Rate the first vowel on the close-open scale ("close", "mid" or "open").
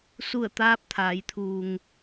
close